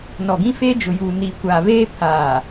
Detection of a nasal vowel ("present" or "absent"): present